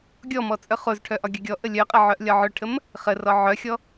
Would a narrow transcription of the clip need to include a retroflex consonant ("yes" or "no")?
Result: yes